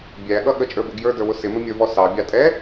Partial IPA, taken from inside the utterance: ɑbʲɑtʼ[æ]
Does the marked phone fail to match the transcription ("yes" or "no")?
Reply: yes